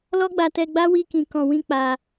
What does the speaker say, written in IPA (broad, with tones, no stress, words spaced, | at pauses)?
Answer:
lɔ˦ɡ͡ba˧tɛ˧ɡ͡ba˦ wi˦kĩ˧kɔ̃˧wĩ˦ k͡pa˧